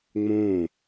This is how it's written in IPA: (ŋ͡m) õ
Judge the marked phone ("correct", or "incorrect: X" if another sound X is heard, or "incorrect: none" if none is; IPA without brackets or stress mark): correct